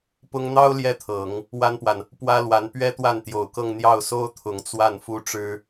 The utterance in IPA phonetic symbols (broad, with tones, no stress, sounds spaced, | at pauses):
p ʊ˥ ŋ n̪ ɑ˥ ʊ̯ l j ɛ˥ t̪ʰ ɤ˨˩˦ ŋ | w a˥ n p w a˨ n | p w ä˥ l w a˧˥ n p ɥ ɛ˥ t̪ w a˥˩ n t̪ j o˨˩ ʊ̯ k ɤ˥˧ ŋ n̪ j ɑ˥˩ ʊ̯ s o˥ ʊ̯ t̪ʰ ʊ˨˩ ŋ t͡s w a˥˩ n f u˥ ʈ͡ʂ ɻ̩˥